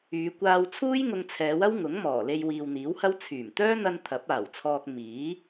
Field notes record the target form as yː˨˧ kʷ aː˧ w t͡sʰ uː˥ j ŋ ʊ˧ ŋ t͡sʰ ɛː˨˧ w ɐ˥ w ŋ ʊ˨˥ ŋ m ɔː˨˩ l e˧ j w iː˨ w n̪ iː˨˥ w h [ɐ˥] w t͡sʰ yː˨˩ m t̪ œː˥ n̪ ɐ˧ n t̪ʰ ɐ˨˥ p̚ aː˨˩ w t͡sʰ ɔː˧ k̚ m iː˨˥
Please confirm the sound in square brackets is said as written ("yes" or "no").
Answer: yes